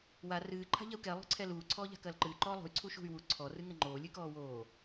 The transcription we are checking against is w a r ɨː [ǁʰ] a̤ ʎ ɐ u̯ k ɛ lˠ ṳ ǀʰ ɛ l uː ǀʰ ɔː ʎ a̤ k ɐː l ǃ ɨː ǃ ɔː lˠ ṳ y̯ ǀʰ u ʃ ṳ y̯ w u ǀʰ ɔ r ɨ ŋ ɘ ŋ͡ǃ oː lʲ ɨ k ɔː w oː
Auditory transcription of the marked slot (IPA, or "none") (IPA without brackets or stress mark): ǃʰ